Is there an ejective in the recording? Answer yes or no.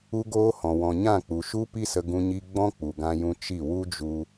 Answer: no